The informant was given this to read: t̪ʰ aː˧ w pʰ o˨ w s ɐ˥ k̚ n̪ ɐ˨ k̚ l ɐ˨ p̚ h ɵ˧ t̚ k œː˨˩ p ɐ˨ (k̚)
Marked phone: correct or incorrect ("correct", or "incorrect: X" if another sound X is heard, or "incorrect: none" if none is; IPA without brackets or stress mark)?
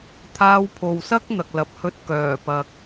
correct